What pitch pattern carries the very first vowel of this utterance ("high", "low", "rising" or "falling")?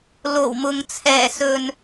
low